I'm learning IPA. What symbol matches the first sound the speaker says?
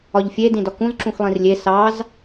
ɒ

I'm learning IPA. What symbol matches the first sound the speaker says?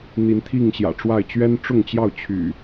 n̪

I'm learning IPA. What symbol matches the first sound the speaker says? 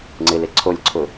ŋ͡ǀ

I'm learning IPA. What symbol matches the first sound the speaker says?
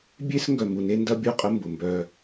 bʲ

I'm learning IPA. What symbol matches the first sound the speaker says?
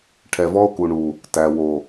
ʈʰ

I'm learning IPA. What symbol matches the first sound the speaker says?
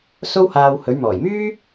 s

